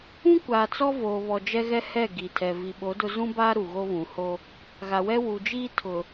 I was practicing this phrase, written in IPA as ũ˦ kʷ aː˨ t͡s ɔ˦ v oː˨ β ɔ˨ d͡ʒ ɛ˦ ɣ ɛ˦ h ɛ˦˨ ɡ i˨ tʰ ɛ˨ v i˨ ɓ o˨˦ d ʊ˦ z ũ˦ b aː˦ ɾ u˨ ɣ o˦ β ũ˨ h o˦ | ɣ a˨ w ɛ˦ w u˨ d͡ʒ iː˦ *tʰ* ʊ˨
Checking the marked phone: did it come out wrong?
no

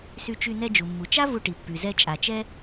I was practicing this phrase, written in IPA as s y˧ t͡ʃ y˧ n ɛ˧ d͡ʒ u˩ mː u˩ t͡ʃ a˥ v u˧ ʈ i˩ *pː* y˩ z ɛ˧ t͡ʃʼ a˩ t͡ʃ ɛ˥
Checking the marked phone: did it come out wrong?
no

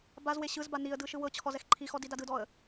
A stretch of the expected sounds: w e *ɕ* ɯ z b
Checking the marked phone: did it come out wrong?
no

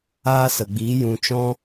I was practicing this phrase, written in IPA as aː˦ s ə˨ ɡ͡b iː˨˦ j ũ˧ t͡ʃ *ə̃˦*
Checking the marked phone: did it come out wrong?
yes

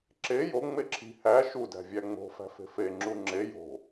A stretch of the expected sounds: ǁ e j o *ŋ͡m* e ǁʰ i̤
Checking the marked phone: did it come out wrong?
no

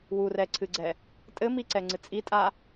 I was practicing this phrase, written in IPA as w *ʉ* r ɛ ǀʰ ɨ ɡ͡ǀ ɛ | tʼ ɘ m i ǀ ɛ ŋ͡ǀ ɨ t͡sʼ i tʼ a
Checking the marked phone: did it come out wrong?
yes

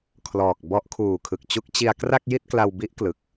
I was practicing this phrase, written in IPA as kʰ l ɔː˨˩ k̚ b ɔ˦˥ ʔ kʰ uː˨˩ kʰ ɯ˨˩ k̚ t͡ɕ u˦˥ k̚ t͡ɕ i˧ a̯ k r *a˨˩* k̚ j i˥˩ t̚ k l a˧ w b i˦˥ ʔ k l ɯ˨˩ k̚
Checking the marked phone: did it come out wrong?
yes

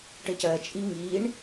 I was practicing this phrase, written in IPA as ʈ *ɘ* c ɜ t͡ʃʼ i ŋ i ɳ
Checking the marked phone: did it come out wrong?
no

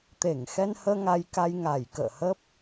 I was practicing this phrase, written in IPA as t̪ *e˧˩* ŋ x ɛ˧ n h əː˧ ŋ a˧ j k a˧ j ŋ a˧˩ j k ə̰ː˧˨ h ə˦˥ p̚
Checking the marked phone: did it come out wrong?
no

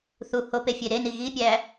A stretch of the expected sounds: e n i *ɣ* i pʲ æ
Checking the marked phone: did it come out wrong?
no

